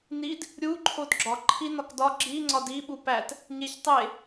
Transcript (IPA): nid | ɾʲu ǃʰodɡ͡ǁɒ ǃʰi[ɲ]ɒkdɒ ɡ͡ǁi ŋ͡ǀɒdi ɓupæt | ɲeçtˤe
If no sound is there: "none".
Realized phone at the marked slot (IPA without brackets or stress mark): n